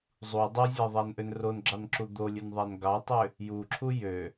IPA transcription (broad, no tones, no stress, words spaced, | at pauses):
zˤu dˤozʲæðˤænʔøn ronɡ͡ǁɑnǁu d̪olʲønðˤæn ɡɑtˤø | juǁʰu jø